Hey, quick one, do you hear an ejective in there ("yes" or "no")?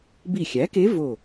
no